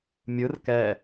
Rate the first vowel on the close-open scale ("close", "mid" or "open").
close